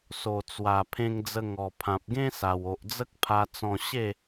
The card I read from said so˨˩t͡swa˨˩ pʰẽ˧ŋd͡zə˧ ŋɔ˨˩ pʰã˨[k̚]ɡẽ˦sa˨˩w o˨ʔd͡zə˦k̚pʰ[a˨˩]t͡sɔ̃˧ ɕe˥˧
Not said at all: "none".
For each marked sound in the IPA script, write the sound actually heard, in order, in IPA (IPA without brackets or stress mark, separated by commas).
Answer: p̚, a˧